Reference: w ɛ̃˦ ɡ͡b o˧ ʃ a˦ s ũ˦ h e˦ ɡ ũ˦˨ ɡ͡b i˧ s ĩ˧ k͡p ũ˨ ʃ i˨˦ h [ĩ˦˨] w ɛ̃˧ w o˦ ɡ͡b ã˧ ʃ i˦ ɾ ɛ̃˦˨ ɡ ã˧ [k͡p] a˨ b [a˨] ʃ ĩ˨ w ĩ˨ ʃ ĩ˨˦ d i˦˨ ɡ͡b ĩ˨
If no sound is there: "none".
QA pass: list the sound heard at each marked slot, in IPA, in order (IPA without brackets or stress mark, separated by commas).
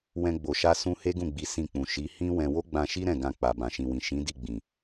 ĩ˦, k͡p, ã˨